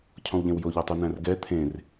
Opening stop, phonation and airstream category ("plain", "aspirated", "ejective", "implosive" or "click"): aspirated